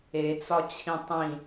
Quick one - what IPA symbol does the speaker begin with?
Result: e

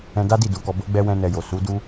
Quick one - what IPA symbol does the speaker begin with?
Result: ɛ̃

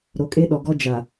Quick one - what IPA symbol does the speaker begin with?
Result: ɾ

